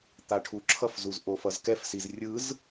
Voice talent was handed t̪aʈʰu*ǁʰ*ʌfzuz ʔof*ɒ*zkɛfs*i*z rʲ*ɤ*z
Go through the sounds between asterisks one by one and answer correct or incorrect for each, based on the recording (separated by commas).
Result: correct, incorrect, correct, incorrect